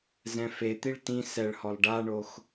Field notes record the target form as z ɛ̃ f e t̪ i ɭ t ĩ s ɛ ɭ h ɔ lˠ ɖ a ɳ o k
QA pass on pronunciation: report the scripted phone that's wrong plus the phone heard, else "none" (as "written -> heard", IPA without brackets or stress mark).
k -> x